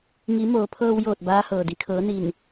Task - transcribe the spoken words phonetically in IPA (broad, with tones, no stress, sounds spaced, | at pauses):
ŋ i˩˧ m oː˩˧ pʰ ɤː˧ w j oː˧˩ t̚ b aː˧˥ h ɤː˩ d i˩ kʰ ɤː˩˧ n i˧˩ n